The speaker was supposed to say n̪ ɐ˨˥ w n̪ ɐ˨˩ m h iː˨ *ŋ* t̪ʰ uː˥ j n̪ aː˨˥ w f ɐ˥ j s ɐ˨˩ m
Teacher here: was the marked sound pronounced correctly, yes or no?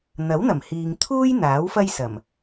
yes